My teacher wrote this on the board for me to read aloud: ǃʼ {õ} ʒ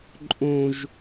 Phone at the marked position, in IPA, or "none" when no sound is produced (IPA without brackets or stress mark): õ